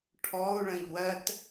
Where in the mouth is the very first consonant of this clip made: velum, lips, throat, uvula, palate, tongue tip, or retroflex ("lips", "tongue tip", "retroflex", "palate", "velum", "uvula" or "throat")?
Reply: retroflex